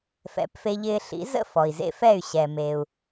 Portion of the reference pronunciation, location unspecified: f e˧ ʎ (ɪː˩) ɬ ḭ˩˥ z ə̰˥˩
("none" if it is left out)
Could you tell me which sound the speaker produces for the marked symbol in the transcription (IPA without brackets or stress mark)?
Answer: ɪː˧